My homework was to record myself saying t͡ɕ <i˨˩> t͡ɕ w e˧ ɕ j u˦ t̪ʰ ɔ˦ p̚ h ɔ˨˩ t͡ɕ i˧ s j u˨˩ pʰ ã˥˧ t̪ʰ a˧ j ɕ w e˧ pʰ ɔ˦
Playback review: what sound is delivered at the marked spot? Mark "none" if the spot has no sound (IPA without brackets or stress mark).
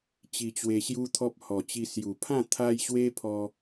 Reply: i˧